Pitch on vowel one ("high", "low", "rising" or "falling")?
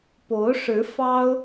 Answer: rising